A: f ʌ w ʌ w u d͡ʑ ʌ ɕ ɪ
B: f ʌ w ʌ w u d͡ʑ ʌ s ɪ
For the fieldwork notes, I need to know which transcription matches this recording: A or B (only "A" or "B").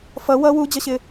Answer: A